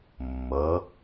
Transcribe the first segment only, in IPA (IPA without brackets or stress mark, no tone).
mː